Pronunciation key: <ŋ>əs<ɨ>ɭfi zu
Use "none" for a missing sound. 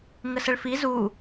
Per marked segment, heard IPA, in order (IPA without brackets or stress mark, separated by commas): ŋ, ə